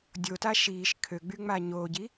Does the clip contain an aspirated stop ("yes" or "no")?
yes